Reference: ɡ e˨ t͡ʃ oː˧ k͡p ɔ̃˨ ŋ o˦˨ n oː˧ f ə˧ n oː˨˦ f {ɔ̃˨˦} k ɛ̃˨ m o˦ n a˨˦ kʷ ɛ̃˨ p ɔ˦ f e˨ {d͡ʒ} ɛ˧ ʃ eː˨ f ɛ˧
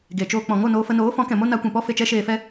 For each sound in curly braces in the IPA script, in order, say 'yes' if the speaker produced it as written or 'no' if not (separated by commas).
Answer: yes, no